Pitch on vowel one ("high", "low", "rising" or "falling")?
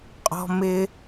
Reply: high